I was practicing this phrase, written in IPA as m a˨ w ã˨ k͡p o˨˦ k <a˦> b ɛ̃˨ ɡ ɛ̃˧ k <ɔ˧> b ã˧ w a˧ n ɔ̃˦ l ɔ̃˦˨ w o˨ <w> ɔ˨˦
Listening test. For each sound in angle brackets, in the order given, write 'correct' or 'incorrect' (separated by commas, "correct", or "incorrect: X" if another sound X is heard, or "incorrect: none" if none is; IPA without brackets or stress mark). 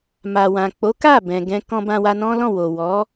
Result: incorrect: a˦˨, incorrect: ɔ̃˧, correct